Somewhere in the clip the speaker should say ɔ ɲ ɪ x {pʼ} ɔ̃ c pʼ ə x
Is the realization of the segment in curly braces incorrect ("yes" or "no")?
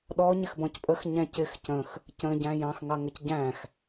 yes